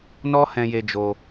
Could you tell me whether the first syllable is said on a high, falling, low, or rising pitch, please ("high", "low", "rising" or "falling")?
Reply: high